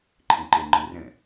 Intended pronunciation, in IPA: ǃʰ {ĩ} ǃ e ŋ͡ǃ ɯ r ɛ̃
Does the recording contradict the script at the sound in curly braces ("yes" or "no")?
yes